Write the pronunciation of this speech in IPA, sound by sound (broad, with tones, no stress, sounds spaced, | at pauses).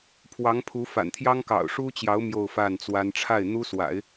pʰ w ɑ˧˥ ŋ pʰ u˧˥ f a̰˨˩ n t̪ʰ j ɑ˥ ŋ k ɑ̰˨˩ ʊ̯ ʂ u˥ t͡ɕ j ɑ˧˥ ʊ̯ m j o˥˧ ʊ̯ f a˥˩ n t͡s w a˥ n ʈ͡ʂʰ a˥˩ ɪ̯ n̪ u˥ s w a̰˨˩˦ ɪ̯